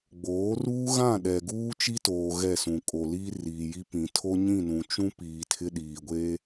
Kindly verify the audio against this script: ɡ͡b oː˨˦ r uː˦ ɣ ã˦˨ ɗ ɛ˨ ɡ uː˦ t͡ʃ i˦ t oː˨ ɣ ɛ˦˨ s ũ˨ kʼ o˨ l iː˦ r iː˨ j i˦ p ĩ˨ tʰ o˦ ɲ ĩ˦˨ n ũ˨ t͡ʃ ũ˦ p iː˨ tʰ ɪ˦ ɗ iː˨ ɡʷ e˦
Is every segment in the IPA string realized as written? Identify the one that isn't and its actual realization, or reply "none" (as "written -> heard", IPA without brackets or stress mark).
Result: none